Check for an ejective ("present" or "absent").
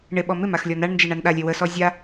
absent